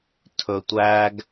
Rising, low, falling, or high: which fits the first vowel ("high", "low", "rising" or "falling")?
low